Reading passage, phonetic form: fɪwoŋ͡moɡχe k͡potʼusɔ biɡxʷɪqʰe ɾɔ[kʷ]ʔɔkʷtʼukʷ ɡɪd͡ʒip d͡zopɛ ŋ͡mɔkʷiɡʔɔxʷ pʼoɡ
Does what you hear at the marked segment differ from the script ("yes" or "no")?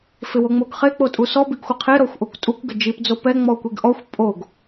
yes